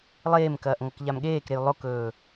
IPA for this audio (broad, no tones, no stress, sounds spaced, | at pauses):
lˠ eː m k ɐː ʔ ŋ ɐ k ʎ a m ɠ eː k ɾ e j lˠ o k ɵː